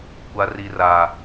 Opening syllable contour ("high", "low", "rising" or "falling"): high